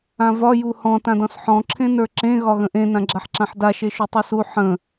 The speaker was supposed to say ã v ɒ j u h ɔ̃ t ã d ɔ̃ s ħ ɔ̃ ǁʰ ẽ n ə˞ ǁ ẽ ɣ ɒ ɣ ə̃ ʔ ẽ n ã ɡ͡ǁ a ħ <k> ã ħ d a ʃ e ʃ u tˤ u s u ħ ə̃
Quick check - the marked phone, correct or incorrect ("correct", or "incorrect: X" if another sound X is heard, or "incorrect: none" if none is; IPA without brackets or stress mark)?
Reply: incorrect: ǁ